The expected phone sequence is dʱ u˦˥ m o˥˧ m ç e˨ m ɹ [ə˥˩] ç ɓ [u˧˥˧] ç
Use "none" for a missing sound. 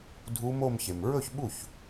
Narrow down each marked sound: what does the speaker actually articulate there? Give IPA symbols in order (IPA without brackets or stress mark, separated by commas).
ɵ˥˩, u˥˩